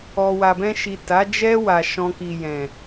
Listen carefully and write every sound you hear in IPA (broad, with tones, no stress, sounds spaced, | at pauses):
ɔ˨ w a˨ b ɛ̃˧ ʃ i˨ t a˨˦ d͡ʒ ɛ˦ w a˧ ʃ ɔ̃˦ k i˧ j ɛ̃˨